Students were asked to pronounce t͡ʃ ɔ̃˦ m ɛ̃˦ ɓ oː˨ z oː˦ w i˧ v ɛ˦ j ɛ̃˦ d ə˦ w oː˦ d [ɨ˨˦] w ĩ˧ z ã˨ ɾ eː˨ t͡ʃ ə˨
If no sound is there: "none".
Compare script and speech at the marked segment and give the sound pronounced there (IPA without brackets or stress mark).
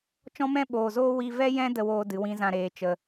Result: ɨ˨˦